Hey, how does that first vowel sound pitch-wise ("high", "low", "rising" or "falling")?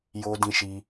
high